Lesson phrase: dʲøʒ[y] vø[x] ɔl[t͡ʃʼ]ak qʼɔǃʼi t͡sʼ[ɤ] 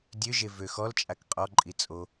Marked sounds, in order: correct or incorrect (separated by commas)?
incorrect, correct, correct, incorrect